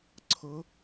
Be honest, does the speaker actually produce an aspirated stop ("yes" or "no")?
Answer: yes